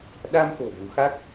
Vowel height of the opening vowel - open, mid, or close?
open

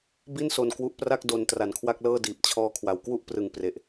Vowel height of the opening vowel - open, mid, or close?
close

